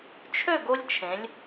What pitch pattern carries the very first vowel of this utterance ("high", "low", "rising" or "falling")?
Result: falling